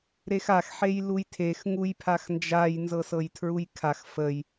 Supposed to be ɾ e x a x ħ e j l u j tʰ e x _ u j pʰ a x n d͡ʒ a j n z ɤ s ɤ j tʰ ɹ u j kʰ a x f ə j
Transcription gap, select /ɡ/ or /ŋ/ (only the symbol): ŋ